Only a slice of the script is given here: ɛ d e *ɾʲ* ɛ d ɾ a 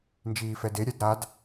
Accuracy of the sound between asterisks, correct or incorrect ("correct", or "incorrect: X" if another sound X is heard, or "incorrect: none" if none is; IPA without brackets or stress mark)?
correct